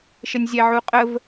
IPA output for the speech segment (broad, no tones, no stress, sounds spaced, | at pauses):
ʃ ə nʲ zʲ æ ʕ u qʼ ə v